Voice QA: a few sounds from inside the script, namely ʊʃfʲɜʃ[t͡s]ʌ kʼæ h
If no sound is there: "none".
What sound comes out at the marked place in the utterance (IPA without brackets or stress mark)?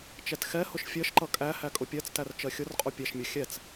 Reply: ǃ